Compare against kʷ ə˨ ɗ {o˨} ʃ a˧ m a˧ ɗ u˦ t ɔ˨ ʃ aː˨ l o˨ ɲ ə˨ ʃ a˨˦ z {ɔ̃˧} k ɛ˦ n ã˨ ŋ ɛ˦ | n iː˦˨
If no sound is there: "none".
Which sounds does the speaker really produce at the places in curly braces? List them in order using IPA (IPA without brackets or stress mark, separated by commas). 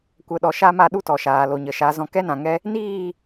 ɔ˨, ɔ̃˧